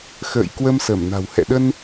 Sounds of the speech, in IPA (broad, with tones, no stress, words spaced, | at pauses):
xə̰ː˧˨jkwə˧msə˧˩mna̤˨˩w hɛ̰˧˨ɗə˧n